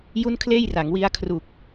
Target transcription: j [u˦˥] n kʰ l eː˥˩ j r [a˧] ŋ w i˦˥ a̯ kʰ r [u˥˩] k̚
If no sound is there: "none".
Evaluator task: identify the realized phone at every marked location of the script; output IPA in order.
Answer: u˥˩, a˩˦, u˨˩

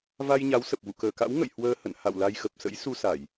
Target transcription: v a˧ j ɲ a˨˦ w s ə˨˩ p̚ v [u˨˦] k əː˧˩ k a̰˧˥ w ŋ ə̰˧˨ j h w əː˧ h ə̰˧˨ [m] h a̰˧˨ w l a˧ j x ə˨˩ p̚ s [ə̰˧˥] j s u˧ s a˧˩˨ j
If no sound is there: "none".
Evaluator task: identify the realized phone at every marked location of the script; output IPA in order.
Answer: ṵ˧˨, n, ə̰˧˥

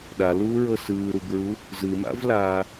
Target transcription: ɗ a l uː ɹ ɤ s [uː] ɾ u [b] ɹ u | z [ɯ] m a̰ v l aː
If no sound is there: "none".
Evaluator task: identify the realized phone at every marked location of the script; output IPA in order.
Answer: ɯː, b, ɯ

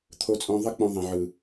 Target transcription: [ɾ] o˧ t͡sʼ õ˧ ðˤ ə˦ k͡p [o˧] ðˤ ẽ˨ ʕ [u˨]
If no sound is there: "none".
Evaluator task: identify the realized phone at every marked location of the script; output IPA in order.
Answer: t̪ʰ, õ˧, ɯ˨

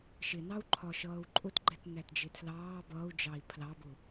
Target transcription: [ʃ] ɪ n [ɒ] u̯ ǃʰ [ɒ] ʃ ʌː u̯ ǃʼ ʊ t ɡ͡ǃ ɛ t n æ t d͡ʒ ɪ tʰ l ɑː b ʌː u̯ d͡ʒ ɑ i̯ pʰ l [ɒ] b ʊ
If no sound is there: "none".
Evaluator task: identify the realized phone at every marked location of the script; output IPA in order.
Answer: ʃ, ɑ, ɒ, ɑ

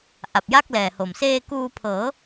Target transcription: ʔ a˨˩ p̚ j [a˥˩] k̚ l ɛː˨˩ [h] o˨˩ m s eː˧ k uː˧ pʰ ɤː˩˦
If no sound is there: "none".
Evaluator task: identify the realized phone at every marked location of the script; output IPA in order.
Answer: a˥˩, h

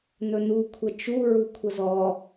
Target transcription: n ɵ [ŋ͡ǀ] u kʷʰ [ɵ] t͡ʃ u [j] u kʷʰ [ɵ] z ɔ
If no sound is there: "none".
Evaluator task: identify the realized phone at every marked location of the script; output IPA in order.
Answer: n, ə, ɹ, ə

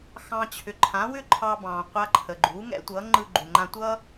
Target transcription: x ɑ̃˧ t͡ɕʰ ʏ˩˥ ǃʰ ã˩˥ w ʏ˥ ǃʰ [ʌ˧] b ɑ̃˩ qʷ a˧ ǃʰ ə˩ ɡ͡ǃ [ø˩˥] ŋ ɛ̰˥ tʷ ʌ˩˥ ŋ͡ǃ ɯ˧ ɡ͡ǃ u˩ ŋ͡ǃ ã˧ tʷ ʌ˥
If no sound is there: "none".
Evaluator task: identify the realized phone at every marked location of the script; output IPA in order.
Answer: ɑ˧, u˩˥

